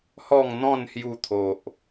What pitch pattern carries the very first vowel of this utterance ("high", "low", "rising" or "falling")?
falling